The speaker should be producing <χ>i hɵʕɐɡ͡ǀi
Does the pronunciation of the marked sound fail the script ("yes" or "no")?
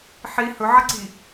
yes